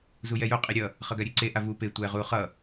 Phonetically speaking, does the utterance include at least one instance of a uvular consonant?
yes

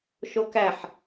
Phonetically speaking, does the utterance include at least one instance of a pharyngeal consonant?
yes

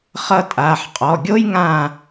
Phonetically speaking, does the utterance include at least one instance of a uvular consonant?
yes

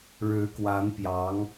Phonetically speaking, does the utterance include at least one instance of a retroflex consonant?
yes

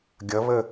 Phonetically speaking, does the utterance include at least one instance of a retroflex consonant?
no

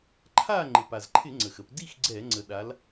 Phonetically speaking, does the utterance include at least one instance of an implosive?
yes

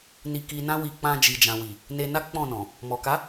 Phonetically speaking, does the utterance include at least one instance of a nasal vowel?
yes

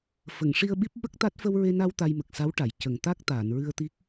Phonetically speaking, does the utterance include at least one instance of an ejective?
no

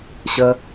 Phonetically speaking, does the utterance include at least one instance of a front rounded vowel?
no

